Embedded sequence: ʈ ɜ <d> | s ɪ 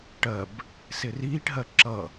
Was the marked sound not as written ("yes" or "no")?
yes